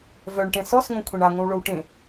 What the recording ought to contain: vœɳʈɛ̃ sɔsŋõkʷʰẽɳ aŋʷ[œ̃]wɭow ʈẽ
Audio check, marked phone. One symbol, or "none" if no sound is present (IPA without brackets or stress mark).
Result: œ̃